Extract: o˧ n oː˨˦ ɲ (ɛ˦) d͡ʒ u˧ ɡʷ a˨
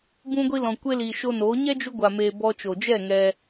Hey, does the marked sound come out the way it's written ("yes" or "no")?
yes